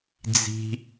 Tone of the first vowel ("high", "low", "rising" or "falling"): low